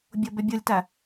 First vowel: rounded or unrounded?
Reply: rounded